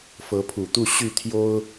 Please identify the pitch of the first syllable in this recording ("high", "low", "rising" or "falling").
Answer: rising